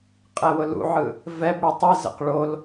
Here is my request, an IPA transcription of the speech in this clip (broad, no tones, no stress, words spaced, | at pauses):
qʼɛwʊlṵʕɯ | vɛbɽɯ tˤe zə̰q ɭol